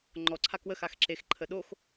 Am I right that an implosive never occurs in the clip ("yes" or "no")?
no